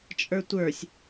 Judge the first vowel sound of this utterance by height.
mid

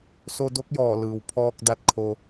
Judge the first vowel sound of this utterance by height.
mid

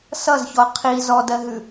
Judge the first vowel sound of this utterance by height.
mid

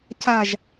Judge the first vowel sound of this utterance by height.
low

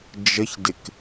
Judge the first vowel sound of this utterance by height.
mid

